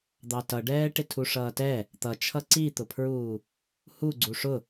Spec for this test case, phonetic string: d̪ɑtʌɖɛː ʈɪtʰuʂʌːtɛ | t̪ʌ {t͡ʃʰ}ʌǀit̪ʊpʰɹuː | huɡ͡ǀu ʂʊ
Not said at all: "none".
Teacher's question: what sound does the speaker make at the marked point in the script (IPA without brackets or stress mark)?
t͡ʃʰ